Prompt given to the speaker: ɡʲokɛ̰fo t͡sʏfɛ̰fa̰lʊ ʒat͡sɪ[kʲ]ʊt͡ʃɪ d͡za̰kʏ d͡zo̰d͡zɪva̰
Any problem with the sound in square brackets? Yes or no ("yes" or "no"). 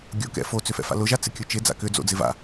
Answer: no